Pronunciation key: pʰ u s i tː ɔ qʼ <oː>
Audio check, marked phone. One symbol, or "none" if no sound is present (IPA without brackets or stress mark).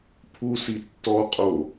o